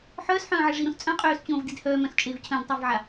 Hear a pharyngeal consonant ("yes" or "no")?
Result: yes